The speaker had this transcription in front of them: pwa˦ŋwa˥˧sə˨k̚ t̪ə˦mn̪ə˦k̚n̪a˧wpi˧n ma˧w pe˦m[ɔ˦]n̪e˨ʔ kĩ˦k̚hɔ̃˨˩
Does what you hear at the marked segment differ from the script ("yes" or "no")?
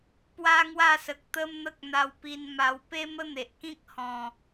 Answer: yes